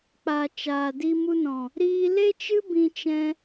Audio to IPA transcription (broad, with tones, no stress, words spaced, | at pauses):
k͡pa˨ t͡ʃaː˨di˧mu˧nɔ̃˨ | ɾiː˧le˦t͡ʃɨ˦ bĩ˧t͡ʃɛ̃˧